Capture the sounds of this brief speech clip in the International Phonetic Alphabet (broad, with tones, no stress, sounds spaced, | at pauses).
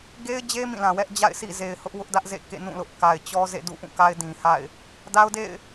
ɡ e˦ ɪ̯ d͡ʑ e˦ m ĩ˦˨ l ã˨ w ɛ˦ ʔ d͡ʑ a̰˦˨ ɪ̯ sʰ ḭ˦˨ z e˨ ɪ̯ h ʊ˦ ʔ w ʊ˦ ʔ d ä˦ ʔ z ḛ˦˨ k ḛ˦˨ n ũ˦˨ l ʊ˦ ʔ k a˨ ɪ̯ t͡ɕ ɔ˦ z ḛ˦˨ d ṵ˦˨ ʔ ũ˦˨ k a˦ ɪ̯ d ĩ˨ h a̰˦˨ ɪ̯ | d a˦ ʊ̯ d ḛ˦˨ ɪ̯